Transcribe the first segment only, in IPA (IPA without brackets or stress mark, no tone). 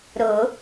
ɾ